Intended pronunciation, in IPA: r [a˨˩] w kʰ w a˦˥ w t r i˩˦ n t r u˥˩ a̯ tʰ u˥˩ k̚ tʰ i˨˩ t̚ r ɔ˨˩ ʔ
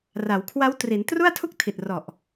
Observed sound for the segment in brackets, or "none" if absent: a˩˦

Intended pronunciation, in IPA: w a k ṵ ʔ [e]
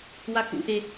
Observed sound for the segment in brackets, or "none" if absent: e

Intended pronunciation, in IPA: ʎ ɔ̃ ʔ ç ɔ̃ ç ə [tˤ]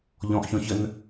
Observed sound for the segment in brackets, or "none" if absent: n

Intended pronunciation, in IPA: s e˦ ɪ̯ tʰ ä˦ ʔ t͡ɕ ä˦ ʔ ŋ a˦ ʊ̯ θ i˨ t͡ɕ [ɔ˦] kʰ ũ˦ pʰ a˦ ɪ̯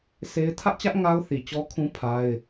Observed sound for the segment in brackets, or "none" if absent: ɔ˦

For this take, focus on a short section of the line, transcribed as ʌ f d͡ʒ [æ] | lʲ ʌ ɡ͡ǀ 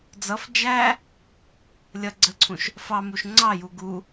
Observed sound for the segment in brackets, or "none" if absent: æ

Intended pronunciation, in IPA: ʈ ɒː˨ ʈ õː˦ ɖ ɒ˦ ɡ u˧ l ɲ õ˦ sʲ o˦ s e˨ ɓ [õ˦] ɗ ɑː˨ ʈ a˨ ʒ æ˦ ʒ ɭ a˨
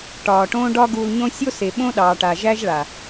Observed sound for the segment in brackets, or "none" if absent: õ˦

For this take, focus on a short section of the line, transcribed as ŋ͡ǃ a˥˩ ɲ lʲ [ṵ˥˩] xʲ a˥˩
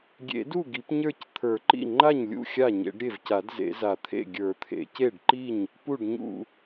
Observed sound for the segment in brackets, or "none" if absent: ṵ˥˩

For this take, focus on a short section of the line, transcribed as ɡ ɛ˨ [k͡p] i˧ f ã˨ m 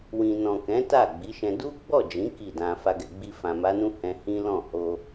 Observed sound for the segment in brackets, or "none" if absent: ɡ͡b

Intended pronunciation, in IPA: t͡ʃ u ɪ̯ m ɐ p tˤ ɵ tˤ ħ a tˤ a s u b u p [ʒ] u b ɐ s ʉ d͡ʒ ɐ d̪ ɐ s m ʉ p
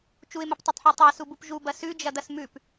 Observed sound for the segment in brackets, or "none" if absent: ʒ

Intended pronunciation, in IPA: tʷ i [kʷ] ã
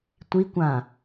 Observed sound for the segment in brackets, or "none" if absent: kʷ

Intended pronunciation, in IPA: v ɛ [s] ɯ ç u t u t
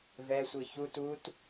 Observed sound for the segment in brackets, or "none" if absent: sʷ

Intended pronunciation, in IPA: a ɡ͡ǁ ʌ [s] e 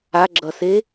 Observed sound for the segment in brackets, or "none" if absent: s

